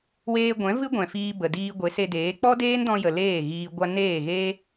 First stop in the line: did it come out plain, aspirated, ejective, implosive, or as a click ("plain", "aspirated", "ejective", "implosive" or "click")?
plain